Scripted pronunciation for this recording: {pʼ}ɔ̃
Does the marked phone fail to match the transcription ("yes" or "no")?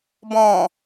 yes